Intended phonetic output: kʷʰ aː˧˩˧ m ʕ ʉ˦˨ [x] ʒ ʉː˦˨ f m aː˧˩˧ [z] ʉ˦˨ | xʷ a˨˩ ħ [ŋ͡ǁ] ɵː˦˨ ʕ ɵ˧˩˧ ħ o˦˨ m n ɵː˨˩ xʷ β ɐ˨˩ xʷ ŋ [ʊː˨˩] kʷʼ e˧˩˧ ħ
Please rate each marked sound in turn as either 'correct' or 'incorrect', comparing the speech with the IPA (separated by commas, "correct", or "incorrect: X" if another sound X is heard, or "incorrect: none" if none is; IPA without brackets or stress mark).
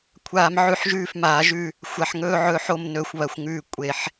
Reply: incorrect: ħ, incorrect: ʒ, incorrect: ŋ, incorrect: ʉː˨˩